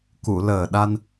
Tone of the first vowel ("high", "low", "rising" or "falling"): low